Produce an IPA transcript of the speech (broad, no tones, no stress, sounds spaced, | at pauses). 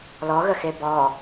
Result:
l ɔ ɣ ə x e b ɔ